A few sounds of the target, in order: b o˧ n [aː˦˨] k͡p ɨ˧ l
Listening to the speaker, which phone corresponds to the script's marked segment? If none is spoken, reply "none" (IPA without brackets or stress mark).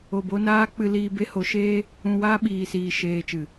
aː˦